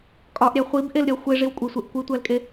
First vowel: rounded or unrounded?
rounded